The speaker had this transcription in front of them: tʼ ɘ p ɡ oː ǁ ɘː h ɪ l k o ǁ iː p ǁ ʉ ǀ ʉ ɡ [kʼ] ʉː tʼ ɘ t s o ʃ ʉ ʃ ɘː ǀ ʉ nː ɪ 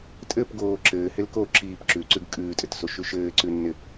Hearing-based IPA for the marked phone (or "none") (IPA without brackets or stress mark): kʼ